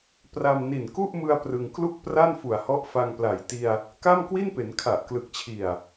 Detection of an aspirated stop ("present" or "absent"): present